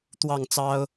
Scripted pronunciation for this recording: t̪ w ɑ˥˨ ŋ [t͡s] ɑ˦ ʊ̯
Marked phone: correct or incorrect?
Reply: correct